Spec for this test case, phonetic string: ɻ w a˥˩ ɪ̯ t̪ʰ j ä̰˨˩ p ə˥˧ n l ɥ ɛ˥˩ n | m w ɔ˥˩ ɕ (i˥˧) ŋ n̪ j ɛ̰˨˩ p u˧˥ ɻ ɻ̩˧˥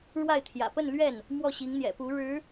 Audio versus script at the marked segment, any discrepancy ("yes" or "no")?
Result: yes